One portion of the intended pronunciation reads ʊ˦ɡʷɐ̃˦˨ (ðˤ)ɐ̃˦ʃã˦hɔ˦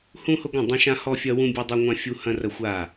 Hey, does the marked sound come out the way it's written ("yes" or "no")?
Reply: no